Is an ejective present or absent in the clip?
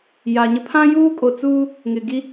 present